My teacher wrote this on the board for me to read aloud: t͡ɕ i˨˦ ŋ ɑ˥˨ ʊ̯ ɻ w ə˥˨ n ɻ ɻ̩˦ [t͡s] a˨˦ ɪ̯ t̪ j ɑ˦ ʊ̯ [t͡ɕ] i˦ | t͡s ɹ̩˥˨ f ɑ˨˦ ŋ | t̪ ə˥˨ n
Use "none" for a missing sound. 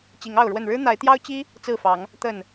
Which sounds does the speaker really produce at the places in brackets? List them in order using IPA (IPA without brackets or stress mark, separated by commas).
n̪, t͡ɕ